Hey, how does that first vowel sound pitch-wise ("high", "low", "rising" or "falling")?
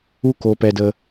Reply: high